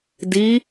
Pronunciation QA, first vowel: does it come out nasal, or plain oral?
oral